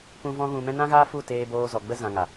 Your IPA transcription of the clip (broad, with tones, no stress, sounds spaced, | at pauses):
p ũ˧ v ɔ̃˦ ɣ ũ˧ m ɛ̃˦ n ã˦ ɣ aː˦ f u˦˨ t eː˧ b oː˧ z ɔ˨ ɡ͡b ə˧ z ã˨ ŋ a˨